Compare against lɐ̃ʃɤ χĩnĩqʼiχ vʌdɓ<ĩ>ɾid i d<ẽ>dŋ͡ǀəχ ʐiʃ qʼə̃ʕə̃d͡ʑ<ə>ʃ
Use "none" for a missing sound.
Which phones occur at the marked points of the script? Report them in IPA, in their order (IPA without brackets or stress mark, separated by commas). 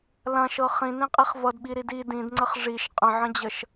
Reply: i, ĩ, ə